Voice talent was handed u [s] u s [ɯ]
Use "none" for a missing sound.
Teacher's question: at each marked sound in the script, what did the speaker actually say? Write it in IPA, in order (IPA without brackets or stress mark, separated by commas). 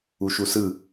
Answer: ʃ, ɯ